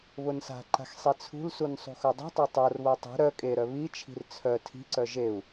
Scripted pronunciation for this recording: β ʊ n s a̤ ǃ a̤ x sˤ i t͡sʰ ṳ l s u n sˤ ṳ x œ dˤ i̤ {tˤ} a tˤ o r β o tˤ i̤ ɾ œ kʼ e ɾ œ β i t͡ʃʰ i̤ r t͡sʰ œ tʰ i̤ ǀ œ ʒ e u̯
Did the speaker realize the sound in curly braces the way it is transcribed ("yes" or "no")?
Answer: yes